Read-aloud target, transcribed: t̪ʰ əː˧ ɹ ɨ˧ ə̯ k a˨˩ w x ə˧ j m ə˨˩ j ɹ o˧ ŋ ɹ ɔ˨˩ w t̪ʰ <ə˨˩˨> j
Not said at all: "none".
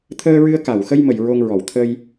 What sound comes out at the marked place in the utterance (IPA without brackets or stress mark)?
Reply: ə˧